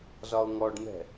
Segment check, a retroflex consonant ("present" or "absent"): present